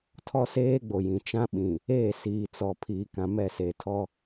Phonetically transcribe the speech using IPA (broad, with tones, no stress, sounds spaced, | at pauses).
tʰ ɔ˦ s eː˦ ɡ͡b o˨ j ĩ˨ t͡ʃ ã˦ ɓ ĩ˨ | eː˦˨ s iː˨ t͡s ɔ˨ pʰ iː˨ k ã˨ m ɛ˦˨ s eː˨ tʰ ɔ˦